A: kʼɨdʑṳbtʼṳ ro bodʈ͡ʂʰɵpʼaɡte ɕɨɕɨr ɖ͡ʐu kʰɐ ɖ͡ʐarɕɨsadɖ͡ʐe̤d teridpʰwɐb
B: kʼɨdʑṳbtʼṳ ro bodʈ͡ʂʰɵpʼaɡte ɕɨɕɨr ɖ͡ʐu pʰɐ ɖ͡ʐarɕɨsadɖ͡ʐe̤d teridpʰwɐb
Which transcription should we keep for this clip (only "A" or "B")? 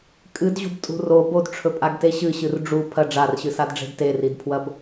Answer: B